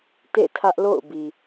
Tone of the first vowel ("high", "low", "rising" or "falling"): falling